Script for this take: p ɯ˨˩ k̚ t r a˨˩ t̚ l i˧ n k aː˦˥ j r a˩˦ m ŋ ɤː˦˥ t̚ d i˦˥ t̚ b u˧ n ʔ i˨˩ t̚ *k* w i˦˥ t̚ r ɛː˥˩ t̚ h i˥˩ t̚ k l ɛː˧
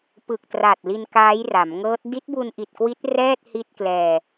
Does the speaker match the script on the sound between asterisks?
yes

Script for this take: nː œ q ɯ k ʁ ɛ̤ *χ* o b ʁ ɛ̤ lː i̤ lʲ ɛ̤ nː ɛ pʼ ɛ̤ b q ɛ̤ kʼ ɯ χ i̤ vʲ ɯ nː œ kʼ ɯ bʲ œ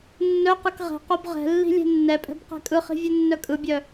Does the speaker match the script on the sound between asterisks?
no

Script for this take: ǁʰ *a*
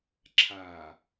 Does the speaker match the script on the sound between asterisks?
yes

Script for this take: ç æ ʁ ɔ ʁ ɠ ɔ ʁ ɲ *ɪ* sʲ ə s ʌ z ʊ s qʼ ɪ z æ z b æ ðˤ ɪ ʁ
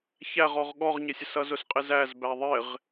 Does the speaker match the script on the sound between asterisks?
yes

